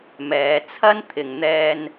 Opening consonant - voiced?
yes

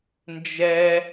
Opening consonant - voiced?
yes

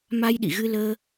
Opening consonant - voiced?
yes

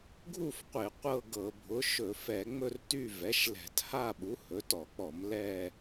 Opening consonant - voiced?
yes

